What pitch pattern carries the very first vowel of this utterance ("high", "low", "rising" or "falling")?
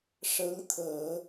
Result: rising